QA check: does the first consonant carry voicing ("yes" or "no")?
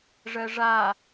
yes